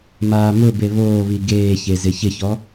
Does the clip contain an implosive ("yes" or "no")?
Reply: no